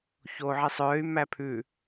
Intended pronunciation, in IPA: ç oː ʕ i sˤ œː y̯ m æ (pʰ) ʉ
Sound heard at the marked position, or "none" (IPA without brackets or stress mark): pʰ